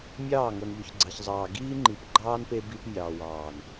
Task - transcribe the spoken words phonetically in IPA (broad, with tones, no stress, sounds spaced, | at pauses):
mʲ ɑː˦˨ ŋ o˨ n ʎ ø˨ ç ɡ͡ǀ ɑ˨ ç zˤ ɑː˨ ɡ iː˦ ŋ͡ǃ i˨ p ɡ͡ǃ ɑː˦ n p e˦ b i˦ p mʲ ɑː˨ w ɑː˨ n